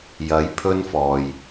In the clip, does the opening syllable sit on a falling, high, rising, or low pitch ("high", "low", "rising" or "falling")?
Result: rising